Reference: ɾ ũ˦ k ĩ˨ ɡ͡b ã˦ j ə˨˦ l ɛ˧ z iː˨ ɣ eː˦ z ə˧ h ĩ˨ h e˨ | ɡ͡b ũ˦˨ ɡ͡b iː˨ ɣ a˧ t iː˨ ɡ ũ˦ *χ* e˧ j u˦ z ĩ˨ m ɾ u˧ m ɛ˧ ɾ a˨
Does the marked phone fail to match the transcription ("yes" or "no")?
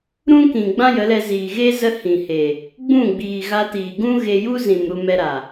yes